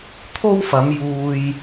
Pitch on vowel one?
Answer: high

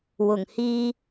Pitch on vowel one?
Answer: low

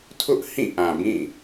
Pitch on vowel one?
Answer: high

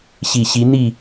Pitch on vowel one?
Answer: low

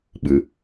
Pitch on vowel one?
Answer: low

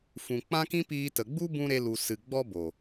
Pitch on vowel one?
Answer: low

